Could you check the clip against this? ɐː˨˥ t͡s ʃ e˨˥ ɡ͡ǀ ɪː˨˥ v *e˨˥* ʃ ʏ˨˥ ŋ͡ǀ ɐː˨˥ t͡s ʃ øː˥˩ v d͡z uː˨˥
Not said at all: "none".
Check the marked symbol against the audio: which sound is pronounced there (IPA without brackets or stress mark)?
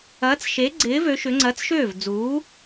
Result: ø˨˥